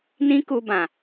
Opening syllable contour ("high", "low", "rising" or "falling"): high